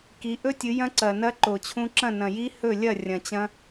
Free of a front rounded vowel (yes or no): yes